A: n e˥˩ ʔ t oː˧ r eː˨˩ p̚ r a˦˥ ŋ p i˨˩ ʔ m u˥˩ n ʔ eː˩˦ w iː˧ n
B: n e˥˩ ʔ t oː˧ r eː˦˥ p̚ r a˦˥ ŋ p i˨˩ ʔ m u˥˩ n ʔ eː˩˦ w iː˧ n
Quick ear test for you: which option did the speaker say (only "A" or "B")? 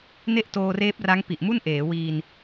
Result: B